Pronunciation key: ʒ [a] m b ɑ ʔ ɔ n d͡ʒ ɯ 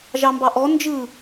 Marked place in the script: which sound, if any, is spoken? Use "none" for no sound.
ɑ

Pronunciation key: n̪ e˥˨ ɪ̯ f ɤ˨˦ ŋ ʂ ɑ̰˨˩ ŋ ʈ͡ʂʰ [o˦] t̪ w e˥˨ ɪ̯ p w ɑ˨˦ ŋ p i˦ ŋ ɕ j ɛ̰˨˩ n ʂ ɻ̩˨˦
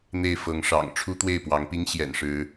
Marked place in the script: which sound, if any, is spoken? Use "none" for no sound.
u˦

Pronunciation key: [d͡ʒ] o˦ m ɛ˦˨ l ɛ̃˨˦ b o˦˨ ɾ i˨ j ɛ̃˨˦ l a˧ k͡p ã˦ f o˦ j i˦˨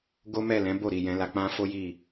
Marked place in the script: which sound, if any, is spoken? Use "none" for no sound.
ɡ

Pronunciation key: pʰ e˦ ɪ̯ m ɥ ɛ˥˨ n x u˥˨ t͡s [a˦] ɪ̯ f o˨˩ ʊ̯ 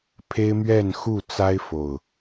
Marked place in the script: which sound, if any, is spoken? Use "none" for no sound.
a˦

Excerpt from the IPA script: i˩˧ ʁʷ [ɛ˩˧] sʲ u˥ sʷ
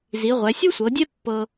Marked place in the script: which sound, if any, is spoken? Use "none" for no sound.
ɛ˩˧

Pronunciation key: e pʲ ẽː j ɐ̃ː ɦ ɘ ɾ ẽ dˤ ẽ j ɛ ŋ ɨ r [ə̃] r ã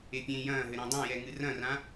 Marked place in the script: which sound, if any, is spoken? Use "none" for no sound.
ɐ̃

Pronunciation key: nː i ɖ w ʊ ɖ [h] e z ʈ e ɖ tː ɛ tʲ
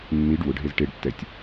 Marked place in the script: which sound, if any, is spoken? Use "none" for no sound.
ɦ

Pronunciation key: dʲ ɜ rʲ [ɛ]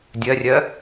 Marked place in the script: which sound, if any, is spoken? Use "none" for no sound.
ɜ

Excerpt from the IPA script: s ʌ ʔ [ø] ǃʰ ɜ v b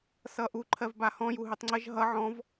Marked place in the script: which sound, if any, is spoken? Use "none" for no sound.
u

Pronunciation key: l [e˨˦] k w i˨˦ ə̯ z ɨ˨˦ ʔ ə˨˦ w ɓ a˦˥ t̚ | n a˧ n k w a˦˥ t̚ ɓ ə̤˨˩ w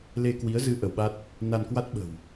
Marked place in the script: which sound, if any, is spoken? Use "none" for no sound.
e˧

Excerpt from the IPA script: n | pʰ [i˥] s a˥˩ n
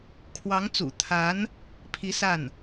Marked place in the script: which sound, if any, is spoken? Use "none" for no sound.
i˧˥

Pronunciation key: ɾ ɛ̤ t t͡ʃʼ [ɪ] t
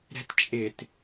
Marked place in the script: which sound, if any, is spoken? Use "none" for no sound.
ɪ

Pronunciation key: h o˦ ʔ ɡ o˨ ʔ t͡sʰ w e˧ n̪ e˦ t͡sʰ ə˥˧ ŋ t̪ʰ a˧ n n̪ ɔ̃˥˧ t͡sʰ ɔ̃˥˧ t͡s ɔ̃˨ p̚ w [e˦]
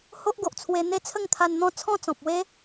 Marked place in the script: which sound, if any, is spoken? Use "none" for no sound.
e˦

